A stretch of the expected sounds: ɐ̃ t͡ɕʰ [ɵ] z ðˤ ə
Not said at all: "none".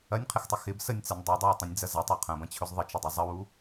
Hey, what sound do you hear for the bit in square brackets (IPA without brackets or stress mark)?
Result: ɵ